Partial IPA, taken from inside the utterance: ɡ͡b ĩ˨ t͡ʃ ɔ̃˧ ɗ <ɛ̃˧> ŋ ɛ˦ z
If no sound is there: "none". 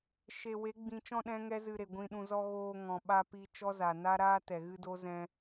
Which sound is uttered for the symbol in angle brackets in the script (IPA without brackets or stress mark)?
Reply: ɛ̃˦